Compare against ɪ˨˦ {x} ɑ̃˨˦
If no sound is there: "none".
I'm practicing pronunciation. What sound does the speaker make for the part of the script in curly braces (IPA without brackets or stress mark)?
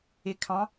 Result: kʰ